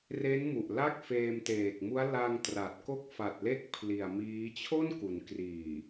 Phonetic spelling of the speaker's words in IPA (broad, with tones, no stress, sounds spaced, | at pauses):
r e˦˥ n m u˨˩ ʔ l a˥˩ k̚ f eː˧ m t eː˨˩ k̚ m u˦˥ a̯ l a˧ ŋ t r a˨˩ t̚ k o˥˩ k̚ f a˨˩ t̚ l e˥˩ k̚ pʰ l i˨˩ a̯ m iː˦˥ t͡ɕʰ o˥˩ n k u˩˦ n k r iː˨˩